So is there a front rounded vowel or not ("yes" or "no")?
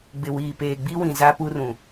no